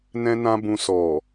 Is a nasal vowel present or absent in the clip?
present